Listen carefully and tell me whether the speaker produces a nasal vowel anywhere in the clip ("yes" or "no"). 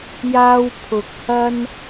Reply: no